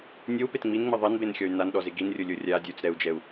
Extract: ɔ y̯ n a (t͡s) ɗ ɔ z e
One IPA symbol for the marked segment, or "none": n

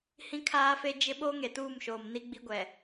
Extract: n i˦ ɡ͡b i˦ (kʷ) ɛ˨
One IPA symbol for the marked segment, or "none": ɡʷ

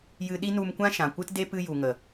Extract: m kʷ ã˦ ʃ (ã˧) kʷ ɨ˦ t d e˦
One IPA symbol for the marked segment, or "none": ã˨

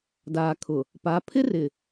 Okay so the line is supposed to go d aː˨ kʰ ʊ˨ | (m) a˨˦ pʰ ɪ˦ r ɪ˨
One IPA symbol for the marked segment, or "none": p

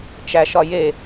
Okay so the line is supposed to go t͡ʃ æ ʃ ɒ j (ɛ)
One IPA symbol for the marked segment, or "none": e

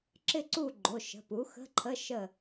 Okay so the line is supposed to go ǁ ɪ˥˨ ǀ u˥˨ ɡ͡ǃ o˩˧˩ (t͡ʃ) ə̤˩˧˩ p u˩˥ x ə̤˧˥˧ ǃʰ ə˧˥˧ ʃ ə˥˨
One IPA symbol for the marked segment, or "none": ʃ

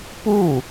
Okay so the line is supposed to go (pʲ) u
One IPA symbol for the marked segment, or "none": p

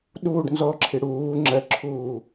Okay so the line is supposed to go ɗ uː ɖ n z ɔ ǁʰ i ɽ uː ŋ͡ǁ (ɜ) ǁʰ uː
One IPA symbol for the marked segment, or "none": ɜ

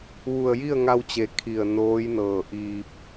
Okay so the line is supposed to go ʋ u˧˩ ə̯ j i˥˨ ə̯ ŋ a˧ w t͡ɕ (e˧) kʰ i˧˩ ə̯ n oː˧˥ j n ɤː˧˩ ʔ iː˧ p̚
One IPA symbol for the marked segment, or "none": e˩˧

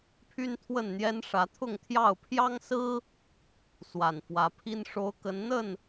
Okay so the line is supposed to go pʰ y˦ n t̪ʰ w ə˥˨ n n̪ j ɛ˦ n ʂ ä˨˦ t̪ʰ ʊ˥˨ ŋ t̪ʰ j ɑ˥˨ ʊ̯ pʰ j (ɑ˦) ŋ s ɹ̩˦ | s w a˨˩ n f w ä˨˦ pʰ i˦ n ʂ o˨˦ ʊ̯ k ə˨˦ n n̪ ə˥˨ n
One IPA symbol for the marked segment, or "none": ɑ˦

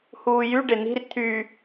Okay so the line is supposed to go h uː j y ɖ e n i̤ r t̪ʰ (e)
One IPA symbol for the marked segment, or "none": y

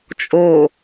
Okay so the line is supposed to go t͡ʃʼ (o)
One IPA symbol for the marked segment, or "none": o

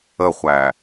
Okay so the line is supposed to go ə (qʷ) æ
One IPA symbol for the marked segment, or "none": χʷ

